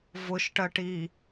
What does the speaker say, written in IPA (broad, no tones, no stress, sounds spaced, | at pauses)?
v ʊ ʃ ʈ ɜ ʈ i